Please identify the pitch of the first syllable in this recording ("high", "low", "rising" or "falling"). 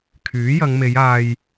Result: rising